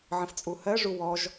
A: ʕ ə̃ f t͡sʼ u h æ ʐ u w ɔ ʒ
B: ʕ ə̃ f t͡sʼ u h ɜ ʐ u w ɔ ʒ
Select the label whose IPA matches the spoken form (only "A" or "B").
B